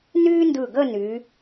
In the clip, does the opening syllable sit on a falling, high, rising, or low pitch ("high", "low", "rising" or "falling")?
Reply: high